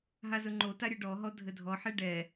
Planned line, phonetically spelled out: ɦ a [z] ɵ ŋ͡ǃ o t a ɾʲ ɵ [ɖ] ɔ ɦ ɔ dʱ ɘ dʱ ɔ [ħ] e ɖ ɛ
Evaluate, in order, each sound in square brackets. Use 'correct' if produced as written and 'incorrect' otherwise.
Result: correct, correct, correct

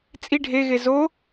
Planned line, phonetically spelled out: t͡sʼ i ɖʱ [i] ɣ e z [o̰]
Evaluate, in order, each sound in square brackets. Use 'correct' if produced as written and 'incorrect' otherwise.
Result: incorrect: e, incorrect: o

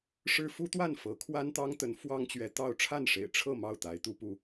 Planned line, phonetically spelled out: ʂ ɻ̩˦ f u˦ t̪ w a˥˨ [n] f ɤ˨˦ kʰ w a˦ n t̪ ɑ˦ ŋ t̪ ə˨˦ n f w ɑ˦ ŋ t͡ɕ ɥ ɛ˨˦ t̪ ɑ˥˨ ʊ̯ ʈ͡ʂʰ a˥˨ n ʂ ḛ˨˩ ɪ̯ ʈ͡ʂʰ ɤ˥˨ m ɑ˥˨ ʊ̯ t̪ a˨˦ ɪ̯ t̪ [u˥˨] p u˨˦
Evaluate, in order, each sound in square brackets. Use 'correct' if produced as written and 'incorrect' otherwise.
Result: correct, incorrect: u˨˦

